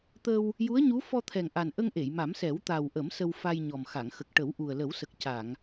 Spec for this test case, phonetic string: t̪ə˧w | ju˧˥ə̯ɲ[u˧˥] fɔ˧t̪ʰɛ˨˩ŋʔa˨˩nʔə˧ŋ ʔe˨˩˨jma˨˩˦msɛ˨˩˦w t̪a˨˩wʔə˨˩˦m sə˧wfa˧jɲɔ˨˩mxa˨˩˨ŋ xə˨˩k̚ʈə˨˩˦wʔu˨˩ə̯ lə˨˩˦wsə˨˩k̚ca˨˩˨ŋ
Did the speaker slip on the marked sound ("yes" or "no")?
no